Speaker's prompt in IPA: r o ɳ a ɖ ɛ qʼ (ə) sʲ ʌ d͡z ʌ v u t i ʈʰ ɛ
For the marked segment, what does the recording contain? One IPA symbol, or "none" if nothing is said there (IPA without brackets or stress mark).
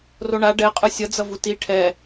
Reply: ɯ